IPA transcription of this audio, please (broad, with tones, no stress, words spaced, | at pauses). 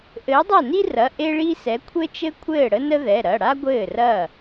ʔɘː˨˥dˤa˥˩ ni˥rɐ˩˧˩ ʔe˥ɭi˥sɛ˨˥ kʷʰɘ˥t͡ʃɘ˥ kʷʰɘː˥˩ɽə˥nə˥ ðɛ˩˧˩ ɾɐ˩˧˩ɽa˥ ɡʷɘː˥˩rɐː˥˩